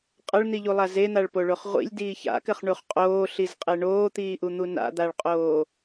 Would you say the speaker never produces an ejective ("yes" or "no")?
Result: no